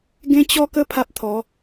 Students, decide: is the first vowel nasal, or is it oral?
nasal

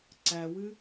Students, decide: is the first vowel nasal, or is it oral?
oral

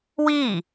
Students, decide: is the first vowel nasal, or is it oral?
oral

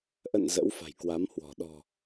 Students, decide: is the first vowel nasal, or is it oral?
oral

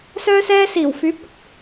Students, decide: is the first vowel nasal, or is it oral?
oral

